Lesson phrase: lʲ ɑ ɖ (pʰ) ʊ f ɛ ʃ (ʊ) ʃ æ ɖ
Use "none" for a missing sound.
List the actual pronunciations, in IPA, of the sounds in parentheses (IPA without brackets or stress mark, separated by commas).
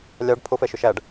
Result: pʰ, ʊ